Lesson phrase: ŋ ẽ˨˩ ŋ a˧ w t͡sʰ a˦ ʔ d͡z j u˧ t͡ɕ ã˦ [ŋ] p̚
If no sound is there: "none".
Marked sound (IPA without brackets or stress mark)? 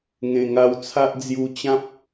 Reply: none